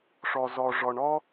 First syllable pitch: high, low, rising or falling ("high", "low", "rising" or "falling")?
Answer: low